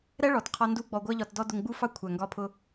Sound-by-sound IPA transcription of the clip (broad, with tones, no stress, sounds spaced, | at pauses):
ɾ ɛ˦ ɭ ɔ˨ t qʰ ɒ˧ n d u˧ ɡ͡b ɔ˧ ɡʷ ɜ˦ ʎ ɒ˧ t d ɔ˦ d ʊ˧ ŋ ɡ͡b u˦ f ɑ˦ kʷʰ æ˨ ŋ ɡ ɒ˧ pʰ ʊ˧